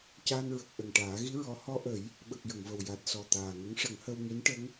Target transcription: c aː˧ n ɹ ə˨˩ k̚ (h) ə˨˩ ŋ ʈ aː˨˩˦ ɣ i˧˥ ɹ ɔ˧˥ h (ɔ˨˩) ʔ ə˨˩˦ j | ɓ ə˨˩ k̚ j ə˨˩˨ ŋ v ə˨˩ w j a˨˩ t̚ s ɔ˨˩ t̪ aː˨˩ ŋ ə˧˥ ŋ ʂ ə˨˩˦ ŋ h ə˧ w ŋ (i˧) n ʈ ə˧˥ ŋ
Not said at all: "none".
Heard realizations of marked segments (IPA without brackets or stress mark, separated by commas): ʔ, ɔ˧, i˧˥